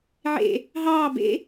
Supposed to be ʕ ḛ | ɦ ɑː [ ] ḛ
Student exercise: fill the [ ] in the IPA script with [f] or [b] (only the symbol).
b